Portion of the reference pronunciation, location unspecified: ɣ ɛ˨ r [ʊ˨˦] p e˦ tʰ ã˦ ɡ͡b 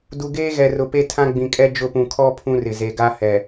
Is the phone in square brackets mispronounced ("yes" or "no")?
yes